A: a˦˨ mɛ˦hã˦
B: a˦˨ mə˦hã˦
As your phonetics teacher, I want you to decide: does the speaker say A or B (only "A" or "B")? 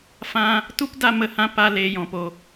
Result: B